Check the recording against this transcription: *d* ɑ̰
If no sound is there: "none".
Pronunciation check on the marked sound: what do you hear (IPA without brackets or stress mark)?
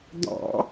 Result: d